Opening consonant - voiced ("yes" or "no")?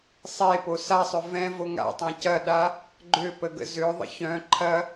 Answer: no